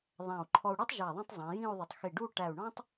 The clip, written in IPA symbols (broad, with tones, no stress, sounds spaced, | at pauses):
ðˤ æ̃˧˩ u̯ ǃʰ ɔ˧ u̯ ɽ u˥ tˤ ʒ ɛ˧˩ ðˤ ĩ˥˧ tˤ zˤ ĩ˩˧ j ĩ˥˧ u̯ ðˤ ʊ˧˩ tˤ x i˧˩ ɖ u˥˧ ʈ æ˧˩ u̯ ɳ ɔ̃˥ tˤ